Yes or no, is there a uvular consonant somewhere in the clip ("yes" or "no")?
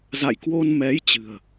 no